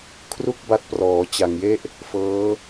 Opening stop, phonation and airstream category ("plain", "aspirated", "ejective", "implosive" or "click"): aspirated